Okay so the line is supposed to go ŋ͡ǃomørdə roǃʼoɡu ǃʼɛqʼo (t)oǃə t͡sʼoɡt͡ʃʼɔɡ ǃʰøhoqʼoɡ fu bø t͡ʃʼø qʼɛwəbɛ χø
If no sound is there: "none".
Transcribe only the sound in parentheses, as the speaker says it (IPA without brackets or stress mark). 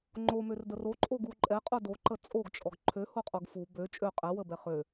d